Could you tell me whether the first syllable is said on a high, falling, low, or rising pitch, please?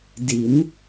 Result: rising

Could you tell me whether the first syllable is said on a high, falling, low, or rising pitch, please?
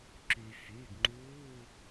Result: low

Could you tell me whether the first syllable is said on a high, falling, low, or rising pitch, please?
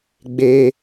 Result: high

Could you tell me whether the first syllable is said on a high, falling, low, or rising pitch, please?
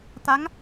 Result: rising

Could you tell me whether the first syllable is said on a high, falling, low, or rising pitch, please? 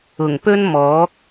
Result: low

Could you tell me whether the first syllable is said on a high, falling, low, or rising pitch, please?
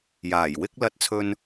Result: low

